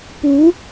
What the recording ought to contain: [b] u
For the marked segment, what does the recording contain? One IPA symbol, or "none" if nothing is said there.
p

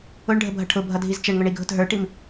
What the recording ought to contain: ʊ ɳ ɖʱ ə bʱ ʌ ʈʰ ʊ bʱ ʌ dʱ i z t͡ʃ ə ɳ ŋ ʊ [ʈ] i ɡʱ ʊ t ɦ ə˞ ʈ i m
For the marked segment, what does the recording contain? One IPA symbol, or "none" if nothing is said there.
ɳ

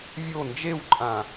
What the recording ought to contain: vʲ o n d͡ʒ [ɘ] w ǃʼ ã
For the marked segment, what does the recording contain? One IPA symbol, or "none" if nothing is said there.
e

